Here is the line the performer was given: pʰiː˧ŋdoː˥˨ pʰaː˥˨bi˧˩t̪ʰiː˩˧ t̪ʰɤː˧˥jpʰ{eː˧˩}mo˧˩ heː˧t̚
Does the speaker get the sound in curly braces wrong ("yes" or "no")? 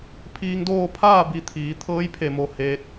yes